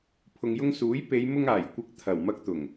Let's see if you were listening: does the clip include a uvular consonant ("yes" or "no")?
no